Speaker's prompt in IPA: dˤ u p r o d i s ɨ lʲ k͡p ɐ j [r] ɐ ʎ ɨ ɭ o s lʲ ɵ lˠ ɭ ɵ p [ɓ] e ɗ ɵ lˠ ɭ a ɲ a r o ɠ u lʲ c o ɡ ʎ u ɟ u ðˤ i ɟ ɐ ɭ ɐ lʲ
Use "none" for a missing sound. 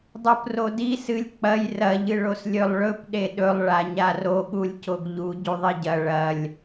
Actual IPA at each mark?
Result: r, ɗ

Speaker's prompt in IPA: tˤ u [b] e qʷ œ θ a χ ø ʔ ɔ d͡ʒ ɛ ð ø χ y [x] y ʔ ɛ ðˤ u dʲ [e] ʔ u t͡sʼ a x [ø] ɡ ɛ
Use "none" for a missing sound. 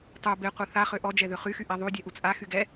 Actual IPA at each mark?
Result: b, x, ɛ, y

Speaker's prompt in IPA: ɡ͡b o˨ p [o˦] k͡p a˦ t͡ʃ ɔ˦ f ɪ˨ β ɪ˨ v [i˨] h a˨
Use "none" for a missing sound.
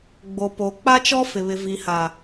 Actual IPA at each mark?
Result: o˨, i˨

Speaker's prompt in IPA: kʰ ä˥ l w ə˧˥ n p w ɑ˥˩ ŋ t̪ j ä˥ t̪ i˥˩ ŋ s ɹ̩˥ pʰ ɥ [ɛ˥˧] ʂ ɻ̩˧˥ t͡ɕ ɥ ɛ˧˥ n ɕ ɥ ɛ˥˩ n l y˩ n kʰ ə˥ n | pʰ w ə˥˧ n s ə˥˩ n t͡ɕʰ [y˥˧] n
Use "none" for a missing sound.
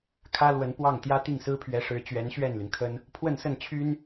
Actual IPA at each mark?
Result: ɛ˧˥, y˥

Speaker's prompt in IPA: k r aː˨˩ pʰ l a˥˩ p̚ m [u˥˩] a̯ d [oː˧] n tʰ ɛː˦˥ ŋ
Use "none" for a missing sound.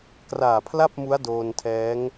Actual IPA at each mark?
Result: u˦˥, oː˧

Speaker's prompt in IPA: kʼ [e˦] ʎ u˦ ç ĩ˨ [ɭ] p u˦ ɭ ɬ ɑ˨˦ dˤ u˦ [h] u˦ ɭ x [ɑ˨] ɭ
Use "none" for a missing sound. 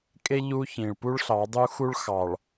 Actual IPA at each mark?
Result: e˦, ɭ, x, ɑ˨

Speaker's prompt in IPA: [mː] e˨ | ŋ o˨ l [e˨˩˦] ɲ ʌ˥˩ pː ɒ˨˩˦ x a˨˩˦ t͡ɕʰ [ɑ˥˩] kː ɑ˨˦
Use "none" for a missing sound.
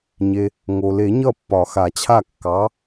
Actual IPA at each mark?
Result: ɲ, e˨˩˦, a˥˩

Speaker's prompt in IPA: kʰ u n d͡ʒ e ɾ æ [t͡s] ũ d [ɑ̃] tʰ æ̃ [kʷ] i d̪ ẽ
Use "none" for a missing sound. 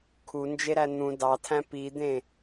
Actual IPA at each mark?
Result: n̪, ɑ, p

